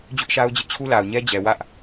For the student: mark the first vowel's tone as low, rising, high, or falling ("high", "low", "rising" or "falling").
high